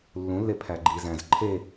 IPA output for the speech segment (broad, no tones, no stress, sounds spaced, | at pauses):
lː ũ lː e pʰ æ ɡ͡ǃ i z æ̃ z ǃʰ e